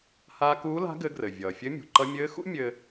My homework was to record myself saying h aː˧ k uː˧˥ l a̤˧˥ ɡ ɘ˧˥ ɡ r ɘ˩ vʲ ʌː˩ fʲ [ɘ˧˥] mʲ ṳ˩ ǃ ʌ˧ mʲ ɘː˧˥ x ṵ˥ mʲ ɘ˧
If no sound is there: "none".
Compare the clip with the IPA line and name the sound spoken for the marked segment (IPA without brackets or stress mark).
ɘ˧˥